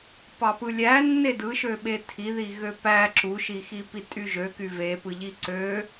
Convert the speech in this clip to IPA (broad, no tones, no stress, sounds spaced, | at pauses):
p ɑ p ɯ lʲ æ nː e d ɯ ʃ ø ɓ e tʰ i ð i ɣ ø p æ ǁ u ʃ i x i p i tʼ y ʒ ø k y v e p ɯ ʎ i ǀ ø